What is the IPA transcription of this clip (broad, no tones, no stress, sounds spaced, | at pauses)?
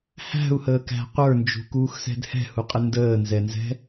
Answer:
h æ̤ u̯ h əː k æ̤ qʷ ə˞ n d͡ʒ ṳ k uː x s ɛ̤ d h ɛ̤ h u qʼ ɪ n d əː n z ɛ n z ɛ̤